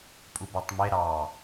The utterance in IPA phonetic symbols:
pʼ u b æ tˤ m e ɾ ɑ

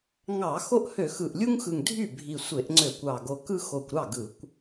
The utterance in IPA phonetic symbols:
ŋ ɑ˧˩˧ x o˦ ʔ h ø˧˩˧ x ɯ˨˩ ʔ lʲ u˦ ŋ x ɯ˨˩ ŋ dʱ y˥˩ bʱ i˨˩ sʷ e˧˩˧ ʔ ŋ͡ǀ ø˧˩˧ kʷ ɑ˨˩ ɡ o˨˩ k ɯ˦ x o˨˩ kʷ ɾ ɑ˥˩ ɡ ɯ˧˩˧ kʷ

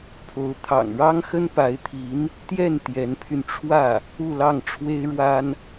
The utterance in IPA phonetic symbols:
pʰ o˧˥ ʊ̯ t̪ʰ ɑ̰˨˩ ŋ ɻ ɑ˥ ŋ x ə˥ n p a˧˥ ɪ̯ t̪ʰ i˧˥ n | t̪ j ɛ˥˩ n t̪ j ɛ˧˥ n pʰ y˧ n ʈ͡ʂʰ w ä˥˩ | u˥˧ l ɑ˥˩ ŋ ʈ͡ʂʰ w e˥ ɪ̯ ɻ w a˥ n

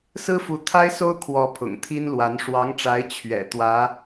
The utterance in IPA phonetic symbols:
s ɹ̩˥ f u˧˥ t̪ʰ a˥ ɪ̯ s o˥ ʊ̯ kʰ w ɔ˧˥ pʰ ʊ̰˨˩ ŋ t̪ʰ i˥ n l w a˧˥ n ʂ w ɑ˧˥ ŋ ʈ͡ʂ a˧˥ ɪ̯ t͡ɕʰ ɥ ɛ̰˨˩ t̪ w ä˧˥

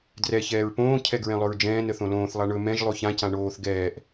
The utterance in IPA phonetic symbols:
d r ɛ ç ɛː ɹ p õː cʰ ɛ ɡ ɹ ɛ̃ lˠ ɵ ɹ d͡ʒ ɛ̃ː n ə θ õ l õː θ lˠ a ɳ ɵ m ɛ̃ ʒ lˠ o ç ã c ã ɳ oː θ ɡ ɛː ʔ

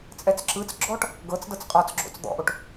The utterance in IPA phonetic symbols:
t͡sʼ ɛ t͡s ǁ ɯ t͡s ɡ͡ǁ ɔ ʈ | ɡ ɤ t͡s d ɤ t͡s qʼ ɔ t͡s ɡ͡ǁ o̰ t͡s d̪ ɔ̰ ʔ o ʈ

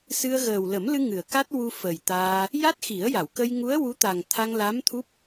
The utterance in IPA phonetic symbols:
s ɨ˧ ə̯ ɣ əː˨˩ w l ə˨˩˦ m l ɨ˧ ŋ ɨ˨˩˨ ə̯ k a˦˥ t̚ w u˧ f ə˨˩ j t̪ aː˧ | j a˦˥ t̚ x i˨˩˦ ə̯ j a˨˩˨ w k ə˧ j ŋ u˧˥ ə̯ w u˧˥ t̪ a˨˩ ŋ t̪ʰ a˧ ŋ l a˧˥ m t̪ʰ u˦˥ p̚

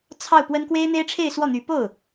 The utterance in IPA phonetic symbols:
t͡sʰ ɑ˥˩ ʊ̯ p w ə˥ n k w e˥ ɪ̯ n̪ e˥ ɪ̯ ʈ͡ʂʰ e˥˧ ɪ̯ s w ɔ˥˩ n̪ y˧˥ p o˥˩ ʊ̯

